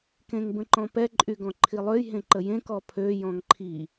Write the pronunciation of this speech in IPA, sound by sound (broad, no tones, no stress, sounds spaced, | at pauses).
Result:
k ẽ ŋ b ə̃ ǃ ɔ̃ p ɛ ǃʼ y ɡ ɔ̃ ǃʰ i lˠ ø j ɦ ẽ ǃ ə j ẽ k ɔ pʰ ø j ɔ̃ ŋ ǃʰ i